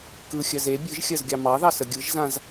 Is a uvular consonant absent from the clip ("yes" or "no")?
yes